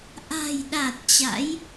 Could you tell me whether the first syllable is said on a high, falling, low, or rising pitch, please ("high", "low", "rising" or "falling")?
low